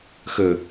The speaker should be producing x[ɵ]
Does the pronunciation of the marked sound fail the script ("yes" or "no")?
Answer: no